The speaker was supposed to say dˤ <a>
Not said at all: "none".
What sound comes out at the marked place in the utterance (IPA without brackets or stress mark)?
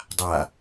a